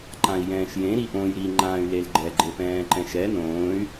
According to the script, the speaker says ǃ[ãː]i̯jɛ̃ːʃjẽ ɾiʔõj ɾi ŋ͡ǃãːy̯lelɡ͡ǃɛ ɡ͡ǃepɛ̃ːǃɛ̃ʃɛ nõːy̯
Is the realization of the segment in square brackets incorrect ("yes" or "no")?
yes